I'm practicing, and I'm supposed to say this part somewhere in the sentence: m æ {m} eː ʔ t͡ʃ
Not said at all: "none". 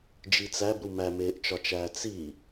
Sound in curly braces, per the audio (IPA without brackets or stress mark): m